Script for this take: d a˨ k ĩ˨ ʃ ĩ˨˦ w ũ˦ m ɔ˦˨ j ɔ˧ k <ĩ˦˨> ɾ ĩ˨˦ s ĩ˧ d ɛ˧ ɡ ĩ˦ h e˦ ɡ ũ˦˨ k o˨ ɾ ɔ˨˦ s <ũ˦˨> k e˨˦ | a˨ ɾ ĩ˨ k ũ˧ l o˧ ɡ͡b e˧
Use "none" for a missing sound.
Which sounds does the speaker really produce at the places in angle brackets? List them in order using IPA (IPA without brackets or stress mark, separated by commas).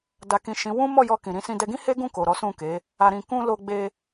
ĩ˨, ũ˦˨